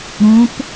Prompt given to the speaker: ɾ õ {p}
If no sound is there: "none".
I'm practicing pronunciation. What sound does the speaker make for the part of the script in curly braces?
p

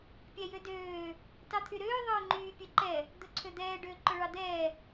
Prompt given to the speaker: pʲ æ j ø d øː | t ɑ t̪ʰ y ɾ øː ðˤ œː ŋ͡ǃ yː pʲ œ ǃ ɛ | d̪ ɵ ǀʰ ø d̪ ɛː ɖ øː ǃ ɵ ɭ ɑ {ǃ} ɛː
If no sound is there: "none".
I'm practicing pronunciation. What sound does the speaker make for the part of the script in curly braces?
d̪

